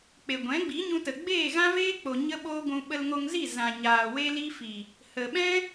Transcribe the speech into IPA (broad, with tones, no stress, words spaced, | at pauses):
k͡pe˨ɡʷɛ̃˨˦ ɡ͡bi˨˦ɲũ˧tə˨ ɡ͡beː˦˨ɣã˦veː˦k͡po˨ ɲə˦ɓoː˦ɡʷũ˧ ɓə˧lŋo˧ŋzi˦˨ zã˨ɲaː˨ we˦li˦fi˨ | hə˨ɓɛ̃˦